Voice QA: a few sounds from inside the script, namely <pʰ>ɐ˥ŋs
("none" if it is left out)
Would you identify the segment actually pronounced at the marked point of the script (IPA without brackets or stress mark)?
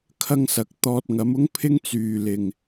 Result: kʰ